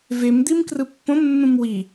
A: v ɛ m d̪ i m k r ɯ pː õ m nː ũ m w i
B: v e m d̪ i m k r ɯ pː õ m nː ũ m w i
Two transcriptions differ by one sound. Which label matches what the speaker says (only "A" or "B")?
B